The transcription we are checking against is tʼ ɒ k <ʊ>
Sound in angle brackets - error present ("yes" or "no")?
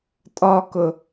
no